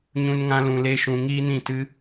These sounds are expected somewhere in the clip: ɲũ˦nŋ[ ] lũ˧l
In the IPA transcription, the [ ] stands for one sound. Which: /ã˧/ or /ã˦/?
ã˦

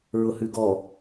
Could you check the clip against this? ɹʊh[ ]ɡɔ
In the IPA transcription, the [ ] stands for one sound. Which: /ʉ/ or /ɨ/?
ʉ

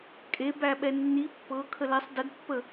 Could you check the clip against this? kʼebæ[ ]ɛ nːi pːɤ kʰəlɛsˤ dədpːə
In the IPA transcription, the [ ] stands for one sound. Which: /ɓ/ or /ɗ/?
ɓ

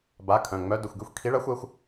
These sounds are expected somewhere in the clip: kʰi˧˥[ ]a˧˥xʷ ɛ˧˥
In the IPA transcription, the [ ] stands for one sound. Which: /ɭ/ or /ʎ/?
ɭ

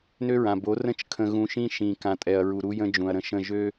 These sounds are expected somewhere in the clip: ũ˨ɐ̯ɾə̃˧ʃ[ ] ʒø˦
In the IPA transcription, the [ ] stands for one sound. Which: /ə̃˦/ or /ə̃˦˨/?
ə̃˦˨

